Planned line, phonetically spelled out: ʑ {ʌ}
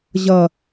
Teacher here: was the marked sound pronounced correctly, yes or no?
yes